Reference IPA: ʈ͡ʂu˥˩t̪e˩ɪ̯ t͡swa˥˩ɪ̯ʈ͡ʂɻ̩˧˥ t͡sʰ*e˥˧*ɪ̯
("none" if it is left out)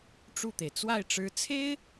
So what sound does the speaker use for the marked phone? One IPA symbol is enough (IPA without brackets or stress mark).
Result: e˥